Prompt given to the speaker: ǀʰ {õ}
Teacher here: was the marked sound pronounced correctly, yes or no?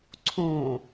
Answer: yes